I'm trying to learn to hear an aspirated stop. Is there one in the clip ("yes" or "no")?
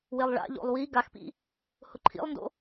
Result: yes